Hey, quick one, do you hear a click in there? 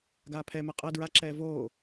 yes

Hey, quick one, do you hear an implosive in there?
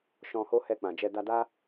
no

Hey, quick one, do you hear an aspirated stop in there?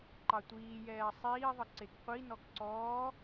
no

